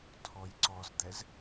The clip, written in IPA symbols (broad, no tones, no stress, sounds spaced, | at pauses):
tʰ ɔ j ǀ ɔ z d̪ ɛ z